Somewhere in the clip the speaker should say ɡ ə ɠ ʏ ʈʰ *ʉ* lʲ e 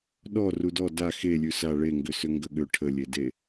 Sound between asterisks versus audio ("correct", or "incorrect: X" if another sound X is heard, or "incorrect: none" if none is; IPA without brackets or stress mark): incorrect: ə